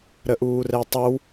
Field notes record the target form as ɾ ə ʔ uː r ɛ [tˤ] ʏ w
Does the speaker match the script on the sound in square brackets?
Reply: yes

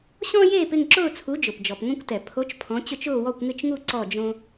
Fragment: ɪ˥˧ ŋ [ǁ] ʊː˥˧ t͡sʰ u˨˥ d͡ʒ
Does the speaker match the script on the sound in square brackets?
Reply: yes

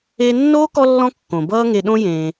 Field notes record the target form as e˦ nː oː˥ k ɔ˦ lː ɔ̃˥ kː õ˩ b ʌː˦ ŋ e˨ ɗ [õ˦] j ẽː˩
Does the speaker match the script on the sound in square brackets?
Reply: yes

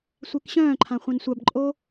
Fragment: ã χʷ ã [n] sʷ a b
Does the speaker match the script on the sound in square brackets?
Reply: yes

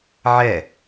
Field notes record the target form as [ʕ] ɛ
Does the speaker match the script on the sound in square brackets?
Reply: yes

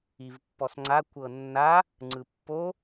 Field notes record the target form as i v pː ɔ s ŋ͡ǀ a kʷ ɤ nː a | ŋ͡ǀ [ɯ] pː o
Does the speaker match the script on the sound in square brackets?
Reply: yes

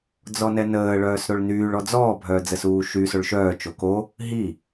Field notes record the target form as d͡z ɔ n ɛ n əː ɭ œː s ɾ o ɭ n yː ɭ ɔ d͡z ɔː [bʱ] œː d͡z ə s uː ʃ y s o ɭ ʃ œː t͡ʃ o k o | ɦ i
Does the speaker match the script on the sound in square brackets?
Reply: yes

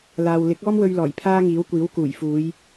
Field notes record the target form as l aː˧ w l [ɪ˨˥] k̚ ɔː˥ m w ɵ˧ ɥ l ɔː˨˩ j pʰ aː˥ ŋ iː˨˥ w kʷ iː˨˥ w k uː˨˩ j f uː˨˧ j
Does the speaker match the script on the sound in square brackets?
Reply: yes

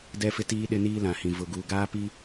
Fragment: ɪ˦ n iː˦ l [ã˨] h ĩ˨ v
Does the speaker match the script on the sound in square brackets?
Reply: yes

